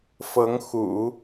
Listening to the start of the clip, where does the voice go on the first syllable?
rising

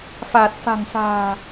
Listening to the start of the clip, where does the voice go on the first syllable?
low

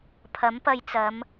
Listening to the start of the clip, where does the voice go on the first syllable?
rising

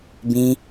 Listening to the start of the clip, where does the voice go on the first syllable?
high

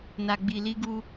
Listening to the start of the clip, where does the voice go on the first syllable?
low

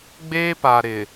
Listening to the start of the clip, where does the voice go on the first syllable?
high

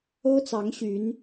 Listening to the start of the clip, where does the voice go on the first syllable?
high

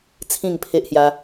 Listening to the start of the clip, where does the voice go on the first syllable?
falling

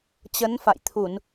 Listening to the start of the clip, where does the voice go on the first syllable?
rising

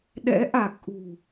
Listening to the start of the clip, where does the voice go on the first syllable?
rising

